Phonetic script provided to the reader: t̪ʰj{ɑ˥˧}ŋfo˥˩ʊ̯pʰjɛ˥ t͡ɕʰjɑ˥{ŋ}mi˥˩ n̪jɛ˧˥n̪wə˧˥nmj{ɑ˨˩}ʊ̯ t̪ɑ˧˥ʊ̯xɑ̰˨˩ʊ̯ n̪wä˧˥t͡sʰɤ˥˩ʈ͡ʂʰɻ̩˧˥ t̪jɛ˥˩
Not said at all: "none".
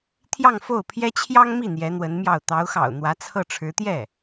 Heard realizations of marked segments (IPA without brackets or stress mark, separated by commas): ɑ˥˧, ŋ, ɑ˥˩